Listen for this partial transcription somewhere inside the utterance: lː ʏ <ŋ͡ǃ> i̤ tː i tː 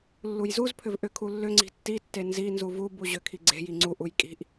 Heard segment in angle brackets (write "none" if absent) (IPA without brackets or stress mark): ŋ͡ǀ